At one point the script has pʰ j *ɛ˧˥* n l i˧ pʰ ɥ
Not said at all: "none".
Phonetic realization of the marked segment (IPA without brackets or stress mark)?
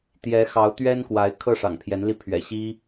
ɛ˧˥